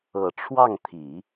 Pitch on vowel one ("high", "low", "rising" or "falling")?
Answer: low